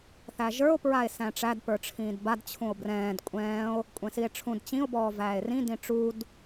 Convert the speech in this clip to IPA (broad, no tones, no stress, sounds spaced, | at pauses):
θ æ ʒ ə˞ o̯ p ɹ a e̯ s æ̃ ʈ͡ʂ æ d p ə˞ ʈ͡ʂʰ ĩː d b a d t͡ɕʰ ũ o̯ b r ɛ̃ː d kʷʼ ɛ̃ː o̯ | kʷʼ ɛ̃ s i e̯ ʈ͡ʂʰ ũ d t͡ɕ ĩ o̯ b ɔː v æː e̯ r ĩ d ĩ ʈ͡ʂ u d